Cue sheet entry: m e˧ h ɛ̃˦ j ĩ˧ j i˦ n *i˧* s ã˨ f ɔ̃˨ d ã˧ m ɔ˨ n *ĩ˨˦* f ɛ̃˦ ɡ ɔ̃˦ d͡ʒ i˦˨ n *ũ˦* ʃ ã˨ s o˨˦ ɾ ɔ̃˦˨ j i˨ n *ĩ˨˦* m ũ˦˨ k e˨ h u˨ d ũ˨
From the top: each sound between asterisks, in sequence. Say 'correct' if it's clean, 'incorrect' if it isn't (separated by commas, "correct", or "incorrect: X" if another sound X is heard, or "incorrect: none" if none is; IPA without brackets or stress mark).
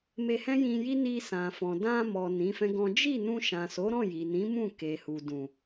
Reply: correct, correct, incorrect: ũ˧, correct